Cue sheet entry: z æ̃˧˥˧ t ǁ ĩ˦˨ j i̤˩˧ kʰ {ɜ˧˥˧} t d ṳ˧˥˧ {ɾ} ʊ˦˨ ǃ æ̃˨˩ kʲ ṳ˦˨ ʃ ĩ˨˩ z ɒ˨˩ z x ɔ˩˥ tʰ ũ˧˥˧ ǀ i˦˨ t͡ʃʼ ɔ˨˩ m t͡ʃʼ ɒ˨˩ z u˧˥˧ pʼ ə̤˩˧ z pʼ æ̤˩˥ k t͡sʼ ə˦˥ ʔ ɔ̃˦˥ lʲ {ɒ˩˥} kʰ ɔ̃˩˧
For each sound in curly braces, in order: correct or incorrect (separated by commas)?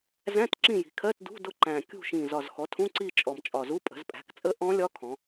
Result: correct, incorrect, incorrect